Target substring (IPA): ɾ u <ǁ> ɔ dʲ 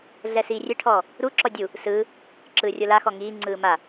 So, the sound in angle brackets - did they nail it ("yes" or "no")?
yes